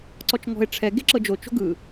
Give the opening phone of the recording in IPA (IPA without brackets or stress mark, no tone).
ǀ